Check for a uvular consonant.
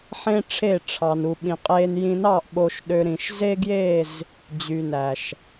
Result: present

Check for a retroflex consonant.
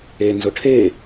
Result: present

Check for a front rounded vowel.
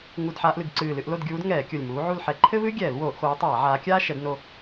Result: absent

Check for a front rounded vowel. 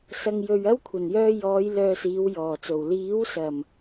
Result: present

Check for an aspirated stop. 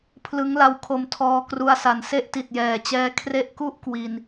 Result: present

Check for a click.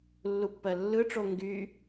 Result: absent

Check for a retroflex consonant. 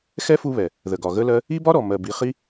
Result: absent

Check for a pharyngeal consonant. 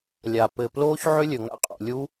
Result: present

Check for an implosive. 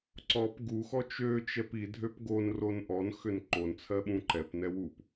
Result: present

